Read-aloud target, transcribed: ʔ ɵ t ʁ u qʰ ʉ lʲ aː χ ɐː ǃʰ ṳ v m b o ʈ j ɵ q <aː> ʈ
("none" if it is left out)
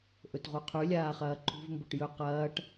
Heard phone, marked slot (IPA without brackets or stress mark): ɐː